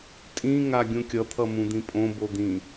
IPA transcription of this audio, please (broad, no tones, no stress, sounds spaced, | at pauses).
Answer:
tʼ ĩ ŋ a ɡʲ ũ kʲ ʌ t̪ʰ ʌ m ũ d̪ ĩ pʼ õ b o d̪ ĩ